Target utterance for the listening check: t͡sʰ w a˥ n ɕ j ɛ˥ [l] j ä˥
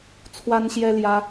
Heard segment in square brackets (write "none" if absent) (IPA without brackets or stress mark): l